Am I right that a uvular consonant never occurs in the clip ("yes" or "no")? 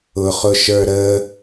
no